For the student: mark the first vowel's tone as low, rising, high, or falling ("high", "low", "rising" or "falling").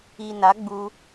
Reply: low